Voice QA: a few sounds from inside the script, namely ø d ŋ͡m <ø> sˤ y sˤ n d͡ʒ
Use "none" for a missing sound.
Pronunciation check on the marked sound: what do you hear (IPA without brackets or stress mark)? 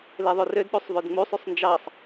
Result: u